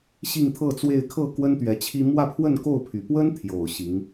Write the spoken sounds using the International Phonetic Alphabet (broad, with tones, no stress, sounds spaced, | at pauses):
ɕ i˥˧ ŋ t̪ʰ ɤ˥˧ t͡s w e˥˧ ɪ̯ kʰ ɤ˥˩ k w ə˥ n t̪ ɥ ɛ˧˥ t͡ɕʰ i˥ m w ä˥˧ pʰ w ə˥˧ n k o˥˩ ʊ̯ pʰ y˨˩ p w ə˥ n t̪ʰ j o˨˩ ʊ̯ ɕ i˧˥ ŋ